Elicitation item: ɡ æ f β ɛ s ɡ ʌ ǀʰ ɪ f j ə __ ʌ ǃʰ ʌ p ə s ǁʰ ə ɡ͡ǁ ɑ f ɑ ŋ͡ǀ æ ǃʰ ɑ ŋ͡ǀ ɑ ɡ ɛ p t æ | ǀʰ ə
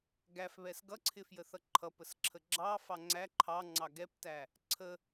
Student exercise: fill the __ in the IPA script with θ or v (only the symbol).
θ